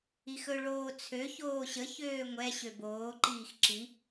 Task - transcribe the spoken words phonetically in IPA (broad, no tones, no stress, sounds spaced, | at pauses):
i x ɵ ɭ oː t͡sʰ ø ç oː ɕ ə ç øː ŋʷ ɛ ɕ ø b oː ǃ iː x ǁ i